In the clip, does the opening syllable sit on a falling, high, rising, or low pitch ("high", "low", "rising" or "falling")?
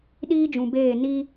high